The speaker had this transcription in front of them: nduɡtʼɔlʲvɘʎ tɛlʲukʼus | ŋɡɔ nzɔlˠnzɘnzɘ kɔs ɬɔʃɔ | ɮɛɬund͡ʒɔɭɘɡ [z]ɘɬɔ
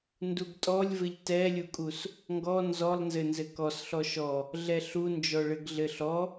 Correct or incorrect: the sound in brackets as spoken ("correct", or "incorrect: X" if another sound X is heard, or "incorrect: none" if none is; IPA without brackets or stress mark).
incorrect: ɮ